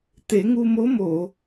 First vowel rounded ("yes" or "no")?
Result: no